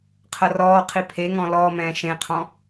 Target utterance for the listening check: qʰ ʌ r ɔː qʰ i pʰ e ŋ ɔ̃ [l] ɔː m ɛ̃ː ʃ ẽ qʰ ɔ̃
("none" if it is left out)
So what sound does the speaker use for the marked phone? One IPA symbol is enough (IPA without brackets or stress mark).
l